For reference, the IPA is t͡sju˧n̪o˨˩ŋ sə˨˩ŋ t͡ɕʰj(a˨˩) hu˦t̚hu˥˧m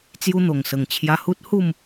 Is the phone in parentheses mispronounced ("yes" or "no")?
yes